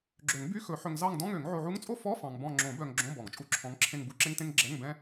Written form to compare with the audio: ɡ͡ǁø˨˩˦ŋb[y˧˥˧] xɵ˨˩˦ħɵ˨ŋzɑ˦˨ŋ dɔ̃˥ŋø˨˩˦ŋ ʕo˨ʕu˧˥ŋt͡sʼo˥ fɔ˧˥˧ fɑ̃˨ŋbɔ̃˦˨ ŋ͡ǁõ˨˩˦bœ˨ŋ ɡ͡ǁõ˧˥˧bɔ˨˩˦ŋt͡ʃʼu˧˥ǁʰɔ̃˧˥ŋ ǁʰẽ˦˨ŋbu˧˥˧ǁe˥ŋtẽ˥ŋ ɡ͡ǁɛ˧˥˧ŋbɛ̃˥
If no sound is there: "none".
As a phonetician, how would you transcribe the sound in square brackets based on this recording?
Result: y˧˥˧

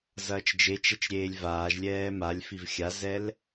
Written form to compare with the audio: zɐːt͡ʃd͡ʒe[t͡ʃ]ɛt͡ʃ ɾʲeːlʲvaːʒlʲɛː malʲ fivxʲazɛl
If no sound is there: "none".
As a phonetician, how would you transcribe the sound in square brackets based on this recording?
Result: t͡ʃ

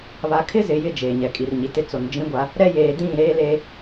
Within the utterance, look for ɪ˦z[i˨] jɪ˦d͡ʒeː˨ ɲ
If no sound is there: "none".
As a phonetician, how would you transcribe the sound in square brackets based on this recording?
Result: ɪ˨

